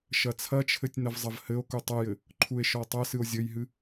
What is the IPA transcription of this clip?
ʃɐt͡sʰɐt͡ʃʰɘtʲ nɐvzˤɐvhɘo̯ku tˤɐjɘ | ǃʰue̯ʃɔtˤɐsɨo̯ zʲɘjɦɨ

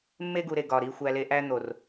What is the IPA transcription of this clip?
mːe˦ɡu˨ɾe˨ ɡɒ˨ɾi˧xʷæ˧le˧ ʔæ˦n̪o˨r

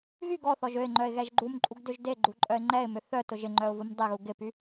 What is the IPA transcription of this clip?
ɣyɡ ɔθɔʒ øɪ̯ŋ͡ǃœɪ̯ ɣɛʒɡ͡ǃumǃʼuɡ døʒdeɡ͡ǃu ǃʼœɪ̯ŋ͡ǃɛɪ̯mʏ θœ tʊʒɪŋ͡ǃœʊ̯ vʊmdˤɪɣu ɡɪpy

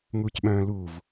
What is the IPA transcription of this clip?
ŋucɓœ̃ːluv

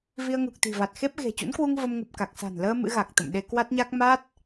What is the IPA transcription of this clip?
vi˧ə̯ŋu˨˩k̚t̪i̤˨˩va˨˩t̚ xe˦˥p̚ ɣe̤˨˩ t͡ɕṵ˧˥nkwu˧ŋ və˧mŋu˨˩p̚ ka˨˩k̚sa̤˨˩nləː˧ mɨ̰˧˥ɣa˨˩k̚t̪ə̰˧˨mɗe˧ kwa˦˥t̚ɲa˦˥k̚ ma˦˥t̚

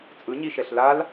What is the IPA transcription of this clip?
t͡sʼɯɲiʃɛɬ lal

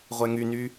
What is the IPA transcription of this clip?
ʁʷɛŋyny

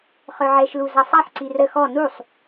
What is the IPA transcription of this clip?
χœʕɛʃlu zasˤaħ ǀirə xɔ nusˤ

